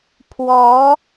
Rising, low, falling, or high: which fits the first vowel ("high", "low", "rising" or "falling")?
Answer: rising